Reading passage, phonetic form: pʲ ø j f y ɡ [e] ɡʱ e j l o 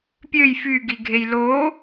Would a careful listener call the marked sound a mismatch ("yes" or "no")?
yes